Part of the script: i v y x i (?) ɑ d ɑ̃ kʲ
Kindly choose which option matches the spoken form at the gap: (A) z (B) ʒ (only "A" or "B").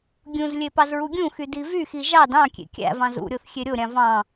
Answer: B